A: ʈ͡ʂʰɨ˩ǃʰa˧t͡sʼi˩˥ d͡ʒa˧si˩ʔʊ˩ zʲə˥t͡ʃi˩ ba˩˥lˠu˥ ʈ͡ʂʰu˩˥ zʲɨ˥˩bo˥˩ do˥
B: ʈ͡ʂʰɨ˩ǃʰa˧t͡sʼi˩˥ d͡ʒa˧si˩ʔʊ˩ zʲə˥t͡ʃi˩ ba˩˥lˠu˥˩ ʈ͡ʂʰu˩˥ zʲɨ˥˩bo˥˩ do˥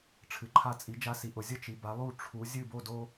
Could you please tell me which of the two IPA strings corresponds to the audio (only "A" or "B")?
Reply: B